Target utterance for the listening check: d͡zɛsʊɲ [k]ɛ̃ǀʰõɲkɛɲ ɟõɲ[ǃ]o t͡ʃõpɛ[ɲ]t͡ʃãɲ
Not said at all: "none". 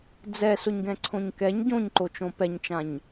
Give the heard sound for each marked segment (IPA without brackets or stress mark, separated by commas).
ɡ, ǃ, ɲ